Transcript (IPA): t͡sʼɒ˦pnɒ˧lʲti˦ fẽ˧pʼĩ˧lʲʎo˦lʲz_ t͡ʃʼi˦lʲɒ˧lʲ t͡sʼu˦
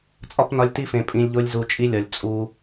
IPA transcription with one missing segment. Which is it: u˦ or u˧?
u˧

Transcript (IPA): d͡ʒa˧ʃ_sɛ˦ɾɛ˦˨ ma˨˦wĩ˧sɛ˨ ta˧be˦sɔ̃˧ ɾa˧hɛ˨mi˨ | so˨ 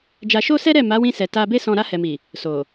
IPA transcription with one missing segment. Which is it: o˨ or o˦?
o˦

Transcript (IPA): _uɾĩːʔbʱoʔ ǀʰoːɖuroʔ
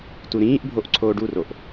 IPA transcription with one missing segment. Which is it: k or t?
t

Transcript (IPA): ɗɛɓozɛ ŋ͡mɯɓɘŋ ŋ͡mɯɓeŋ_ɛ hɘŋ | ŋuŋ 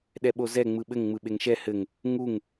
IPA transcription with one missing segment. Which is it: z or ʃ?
ʃ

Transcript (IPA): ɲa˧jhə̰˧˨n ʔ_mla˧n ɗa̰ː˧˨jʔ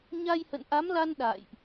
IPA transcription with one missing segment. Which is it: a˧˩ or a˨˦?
a˨˦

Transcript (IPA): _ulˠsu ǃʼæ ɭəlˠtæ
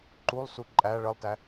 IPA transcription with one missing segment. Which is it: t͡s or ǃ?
ǃ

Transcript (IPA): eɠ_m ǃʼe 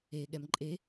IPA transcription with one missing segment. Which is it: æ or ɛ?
ɛ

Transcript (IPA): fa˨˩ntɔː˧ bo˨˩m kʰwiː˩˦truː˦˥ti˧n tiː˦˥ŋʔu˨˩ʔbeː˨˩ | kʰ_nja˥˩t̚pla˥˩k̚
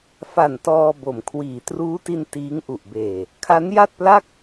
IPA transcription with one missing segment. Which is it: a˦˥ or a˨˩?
a˦˥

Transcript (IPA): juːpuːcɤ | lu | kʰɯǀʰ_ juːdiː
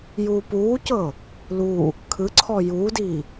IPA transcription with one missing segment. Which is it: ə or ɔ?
ɔ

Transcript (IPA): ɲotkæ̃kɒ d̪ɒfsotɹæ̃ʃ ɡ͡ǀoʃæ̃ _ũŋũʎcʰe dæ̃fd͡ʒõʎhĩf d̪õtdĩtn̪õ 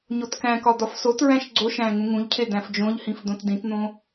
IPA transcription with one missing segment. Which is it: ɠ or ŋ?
ŋ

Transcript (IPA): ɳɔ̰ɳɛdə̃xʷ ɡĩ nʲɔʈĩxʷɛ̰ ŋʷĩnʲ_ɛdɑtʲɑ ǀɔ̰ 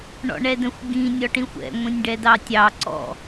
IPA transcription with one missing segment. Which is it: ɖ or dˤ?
ɖ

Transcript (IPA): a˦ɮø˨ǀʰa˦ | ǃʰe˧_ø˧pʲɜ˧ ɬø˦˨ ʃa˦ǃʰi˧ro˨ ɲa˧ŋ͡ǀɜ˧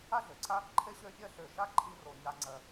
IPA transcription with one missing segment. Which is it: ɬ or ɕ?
ɕ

